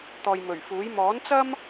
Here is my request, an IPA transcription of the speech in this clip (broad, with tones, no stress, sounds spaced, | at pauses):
t̪ ɔː˨ j m ɵ˨˩ ɥ f uː˨˥ j m ɔː˨˥ n t͡s ɐ˥ m